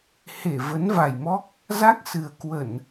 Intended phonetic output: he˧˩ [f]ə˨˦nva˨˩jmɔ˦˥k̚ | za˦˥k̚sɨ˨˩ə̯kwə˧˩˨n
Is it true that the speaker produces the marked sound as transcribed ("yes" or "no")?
no